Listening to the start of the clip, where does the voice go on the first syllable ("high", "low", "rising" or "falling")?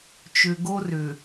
low